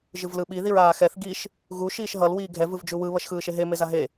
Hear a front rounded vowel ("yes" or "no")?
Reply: no